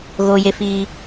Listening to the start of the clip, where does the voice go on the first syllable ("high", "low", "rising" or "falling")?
high